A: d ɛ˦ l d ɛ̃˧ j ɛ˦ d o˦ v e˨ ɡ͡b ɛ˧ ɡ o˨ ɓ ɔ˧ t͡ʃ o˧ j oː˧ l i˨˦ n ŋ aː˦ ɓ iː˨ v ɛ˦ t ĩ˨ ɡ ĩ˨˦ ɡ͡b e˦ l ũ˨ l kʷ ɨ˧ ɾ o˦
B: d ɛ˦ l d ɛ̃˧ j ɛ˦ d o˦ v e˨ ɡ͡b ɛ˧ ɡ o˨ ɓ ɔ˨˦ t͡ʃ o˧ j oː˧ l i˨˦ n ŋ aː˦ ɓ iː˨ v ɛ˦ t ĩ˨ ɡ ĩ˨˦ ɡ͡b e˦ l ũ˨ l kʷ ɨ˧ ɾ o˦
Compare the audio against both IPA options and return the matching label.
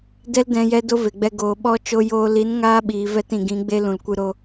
A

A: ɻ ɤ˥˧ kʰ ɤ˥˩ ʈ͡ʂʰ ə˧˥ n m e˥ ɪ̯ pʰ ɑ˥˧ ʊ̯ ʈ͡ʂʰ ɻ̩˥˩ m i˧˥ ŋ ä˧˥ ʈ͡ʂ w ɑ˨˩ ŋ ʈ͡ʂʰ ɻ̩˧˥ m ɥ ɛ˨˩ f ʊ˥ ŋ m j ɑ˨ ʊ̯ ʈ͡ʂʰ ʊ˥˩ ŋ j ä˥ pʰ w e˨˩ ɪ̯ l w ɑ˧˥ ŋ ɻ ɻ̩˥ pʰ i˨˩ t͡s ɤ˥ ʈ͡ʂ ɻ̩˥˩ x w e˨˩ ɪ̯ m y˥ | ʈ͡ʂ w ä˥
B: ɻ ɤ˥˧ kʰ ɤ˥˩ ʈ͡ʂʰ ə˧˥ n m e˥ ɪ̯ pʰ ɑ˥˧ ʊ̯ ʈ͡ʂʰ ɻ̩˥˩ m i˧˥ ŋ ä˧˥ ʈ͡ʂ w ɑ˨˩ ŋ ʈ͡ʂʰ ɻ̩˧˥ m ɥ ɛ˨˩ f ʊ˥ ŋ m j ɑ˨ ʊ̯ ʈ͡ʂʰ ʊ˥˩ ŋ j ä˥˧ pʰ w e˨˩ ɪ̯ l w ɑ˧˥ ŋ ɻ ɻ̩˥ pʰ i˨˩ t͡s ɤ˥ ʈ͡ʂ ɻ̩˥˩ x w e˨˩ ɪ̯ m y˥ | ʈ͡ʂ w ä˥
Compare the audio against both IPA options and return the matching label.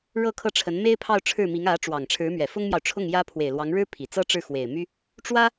A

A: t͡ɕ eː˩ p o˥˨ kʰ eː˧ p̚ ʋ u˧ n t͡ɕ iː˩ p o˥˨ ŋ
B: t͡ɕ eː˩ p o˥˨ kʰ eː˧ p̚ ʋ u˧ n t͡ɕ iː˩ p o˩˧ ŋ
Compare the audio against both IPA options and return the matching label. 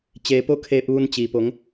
B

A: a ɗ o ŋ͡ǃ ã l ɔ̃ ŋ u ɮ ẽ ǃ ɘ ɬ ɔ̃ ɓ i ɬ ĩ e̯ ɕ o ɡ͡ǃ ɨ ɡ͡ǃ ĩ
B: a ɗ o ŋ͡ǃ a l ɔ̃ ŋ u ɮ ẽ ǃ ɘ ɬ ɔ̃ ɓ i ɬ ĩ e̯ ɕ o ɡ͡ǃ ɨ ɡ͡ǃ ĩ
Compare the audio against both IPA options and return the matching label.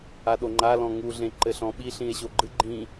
B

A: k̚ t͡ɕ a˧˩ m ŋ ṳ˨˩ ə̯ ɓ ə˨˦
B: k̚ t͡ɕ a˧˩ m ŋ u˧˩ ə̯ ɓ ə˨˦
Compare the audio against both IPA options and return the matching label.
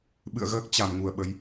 B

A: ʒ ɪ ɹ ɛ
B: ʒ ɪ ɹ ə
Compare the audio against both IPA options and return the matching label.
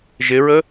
B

